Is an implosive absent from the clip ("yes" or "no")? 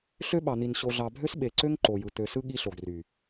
no